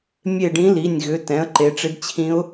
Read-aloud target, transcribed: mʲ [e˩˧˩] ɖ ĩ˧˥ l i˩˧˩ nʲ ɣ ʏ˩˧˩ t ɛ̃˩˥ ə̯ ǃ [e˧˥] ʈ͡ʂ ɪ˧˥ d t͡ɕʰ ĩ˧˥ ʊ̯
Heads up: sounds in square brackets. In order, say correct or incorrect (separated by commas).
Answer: incorrect, incorrect